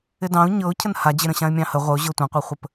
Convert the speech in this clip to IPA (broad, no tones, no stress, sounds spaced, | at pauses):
ɪ d ɑ̃ ʊ̯ ɲ ɤ ʊ̯ cʰ ə n h a d͡ʑ ɪ ɾ ə̃ ɕ ã ɪ̯ mʲ ɑ̃ h ə ʁʷ ə ʊ̯ ʑ ɤ tʷ ə̃ qʷ ɤ χʷ ə p